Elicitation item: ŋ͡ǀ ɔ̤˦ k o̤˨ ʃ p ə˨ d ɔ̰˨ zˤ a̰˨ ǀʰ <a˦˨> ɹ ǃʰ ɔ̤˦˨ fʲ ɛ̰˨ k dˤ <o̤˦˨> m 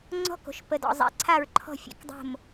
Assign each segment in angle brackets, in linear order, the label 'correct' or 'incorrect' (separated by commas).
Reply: correct, correct